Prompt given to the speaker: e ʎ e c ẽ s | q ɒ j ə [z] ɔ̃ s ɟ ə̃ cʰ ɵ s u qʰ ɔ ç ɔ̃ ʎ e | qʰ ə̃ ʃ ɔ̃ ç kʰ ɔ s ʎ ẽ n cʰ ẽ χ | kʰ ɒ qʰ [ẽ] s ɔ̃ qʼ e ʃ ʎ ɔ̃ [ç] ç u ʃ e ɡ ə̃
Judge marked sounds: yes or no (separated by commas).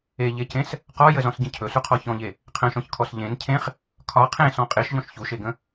yes, yes, no